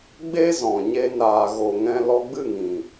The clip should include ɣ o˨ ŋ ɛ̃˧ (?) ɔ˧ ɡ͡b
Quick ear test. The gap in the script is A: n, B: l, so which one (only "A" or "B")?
B